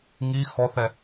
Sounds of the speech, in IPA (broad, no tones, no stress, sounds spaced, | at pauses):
ŋ i x ɔ θ ɛ